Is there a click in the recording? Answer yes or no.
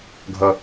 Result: no